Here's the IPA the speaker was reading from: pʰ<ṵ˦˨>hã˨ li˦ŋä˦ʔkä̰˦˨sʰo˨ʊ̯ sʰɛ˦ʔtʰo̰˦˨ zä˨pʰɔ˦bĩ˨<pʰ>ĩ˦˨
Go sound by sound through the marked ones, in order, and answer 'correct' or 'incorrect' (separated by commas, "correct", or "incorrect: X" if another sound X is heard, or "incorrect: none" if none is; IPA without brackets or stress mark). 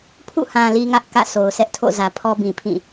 correct, correct